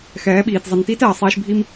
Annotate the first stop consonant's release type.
implosive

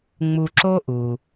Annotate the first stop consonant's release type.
click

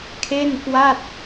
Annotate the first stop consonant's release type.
aspirated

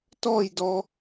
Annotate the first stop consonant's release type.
plain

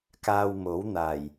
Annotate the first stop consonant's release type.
plain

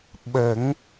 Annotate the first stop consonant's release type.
implosive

